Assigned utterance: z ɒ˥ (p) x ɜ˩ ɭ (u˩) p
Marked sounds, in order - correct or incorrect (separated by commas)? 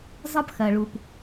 correct, correct